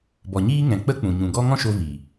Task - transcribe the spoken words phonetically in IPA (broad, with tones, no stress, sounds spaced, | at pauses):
b ɔ˨ ɲ iː˦ ŋ ɛ̃˨ k͡p ə˦ k͡p ũ˨ ɲ ũ˨ ɡ ɔ˦ ŋ ɔ̃˦ ʃ o˧ v iː˨